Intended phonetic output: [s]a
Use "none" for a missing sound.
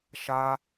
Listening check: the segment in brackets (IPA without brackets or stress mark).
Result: ʃ